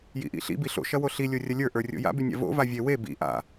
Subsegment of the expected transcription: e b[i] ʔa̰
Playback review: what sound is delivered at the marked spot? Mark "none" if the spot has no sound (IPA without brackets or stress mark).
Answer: ḭ